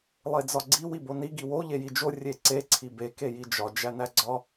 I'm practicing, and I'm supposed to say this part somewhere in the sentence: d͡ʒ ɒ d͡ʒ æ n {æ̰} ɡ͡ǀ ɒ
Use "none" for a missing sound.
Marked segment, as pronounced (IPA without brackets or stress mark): æ